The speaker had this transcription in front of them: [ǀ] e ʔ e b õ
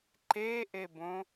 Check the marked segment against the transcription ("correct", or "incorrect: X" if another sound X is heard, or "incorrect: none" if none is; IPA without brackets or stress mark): incorrect: ǃ